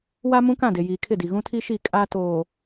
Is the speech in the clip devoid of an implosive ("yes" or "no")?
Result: yes